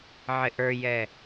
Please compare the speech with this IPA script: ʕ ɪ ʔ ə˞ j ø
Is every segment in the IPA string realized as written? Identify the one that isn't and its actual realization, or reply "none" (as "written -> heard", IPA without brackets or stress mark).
ø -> ɛ